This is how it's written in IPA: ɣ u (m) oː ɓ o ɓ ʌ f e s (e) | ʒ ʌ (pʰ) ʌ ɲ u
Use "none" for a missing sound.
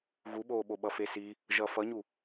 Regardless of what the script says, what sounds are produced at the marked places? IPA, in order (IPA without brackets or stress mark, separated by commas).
ɓ, i, f